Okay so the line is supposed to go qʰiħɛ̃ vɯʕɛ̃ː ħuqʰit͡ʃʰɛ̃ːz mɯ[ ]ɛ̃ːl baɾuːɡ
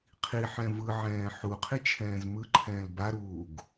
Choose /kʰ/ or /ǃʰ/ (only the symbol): ǃʰ